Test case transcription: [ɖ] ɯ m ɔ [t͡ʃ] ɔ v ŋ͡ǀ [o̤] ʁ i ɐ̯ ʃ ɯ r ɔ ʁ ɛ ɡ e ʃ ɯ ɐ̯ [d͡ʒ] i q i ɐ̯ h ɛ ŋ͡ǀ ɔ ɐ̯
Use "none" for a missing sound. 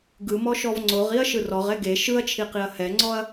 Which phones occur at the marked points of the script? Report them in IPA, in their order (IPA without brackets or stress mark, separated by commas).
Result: ɡ, ʃ, o, t͡ʃʰ